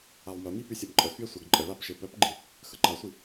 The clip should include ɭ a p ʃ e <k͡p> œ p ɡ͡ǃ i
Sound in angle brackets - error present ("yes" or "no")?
yes